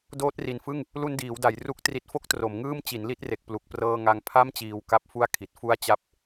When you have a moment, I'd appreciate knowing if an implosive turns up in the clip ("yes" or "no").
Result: no